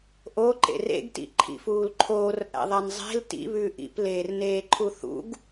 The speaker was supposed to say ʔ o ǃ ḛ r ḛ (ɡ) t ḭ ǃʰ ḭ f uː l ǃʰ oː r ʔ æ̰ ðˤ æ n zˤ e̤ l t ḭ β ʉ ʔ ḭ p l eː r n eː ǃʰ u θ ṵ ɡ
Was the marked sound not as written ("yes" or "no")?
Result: no